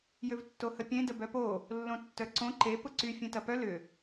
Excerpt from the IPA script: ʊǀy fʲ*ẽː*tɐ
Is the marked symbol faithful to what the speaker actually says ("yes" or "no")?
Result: no